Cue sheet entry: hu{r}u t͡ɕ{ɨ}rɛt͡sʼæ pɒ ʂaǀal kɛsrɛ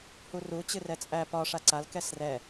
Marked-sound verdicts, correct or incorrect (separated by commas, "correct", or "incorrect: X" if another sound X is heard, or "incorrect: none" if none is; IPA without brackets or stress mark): correct, correct